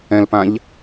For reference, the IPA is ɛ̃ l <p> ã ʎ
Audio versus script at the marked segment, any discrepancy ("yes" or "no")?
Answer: no